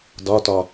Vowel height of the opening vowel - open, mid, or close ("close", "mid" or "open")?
open